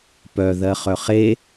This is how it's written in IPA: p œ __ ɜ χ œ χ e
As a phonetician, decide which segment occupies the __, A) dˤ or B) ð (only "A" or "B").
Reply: B